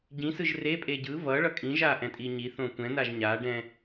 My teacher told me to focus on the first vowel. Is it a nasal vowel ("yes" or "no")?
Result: yes